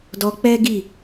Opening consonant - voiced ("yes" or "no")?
yes